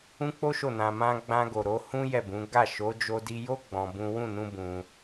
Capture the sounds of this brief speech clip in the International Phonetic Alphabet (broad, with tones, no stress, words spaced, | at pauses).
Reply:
ũ˦k͡po˦ʃo˦˨ nã˧mã˦ ɡ͡bã˧ɡo˨ ɾo˨˦ hũ˦ jɛ˦˨bũ˨˦ ɡa˦˨ ʃo˨˦ d͡ʒo˧di˧jo˦ ɡ͡bɔ̃˧bũ˦ wũ˦˨nũ˧ bũ˧